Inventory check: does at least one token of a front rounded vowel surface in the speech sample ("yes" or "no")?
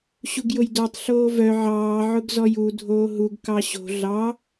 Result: yes